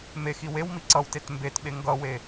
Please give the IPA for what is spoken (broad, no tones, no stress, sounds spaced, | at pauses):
m e x i w e w m i ǀ ʌ w t e t m b e t ɓ e ŋ ɡ ʌ w e